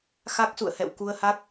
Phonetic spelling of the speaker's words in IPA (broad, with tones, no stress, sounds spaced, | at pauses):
x a˦˥ k̚ s ṵ˧˨ ə̯ h ɛ̰˧˨ w k u˧ ə̯ h a˦˥ k̚